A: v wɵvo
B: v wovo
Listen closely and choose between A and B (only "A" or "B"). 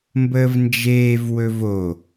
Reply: A